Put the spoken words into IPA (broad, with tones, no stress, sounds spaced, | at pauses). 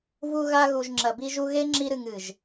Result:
v u˧ ɣ a˧ ɣ u˨ ʒ ŋ͡ǁ ɐ˨ b i˧ ʒ u˧ ɣ e˦ ŋ͡ǁ i˧ ɾ ɨ˨ ŋ ɨ˨ ʒ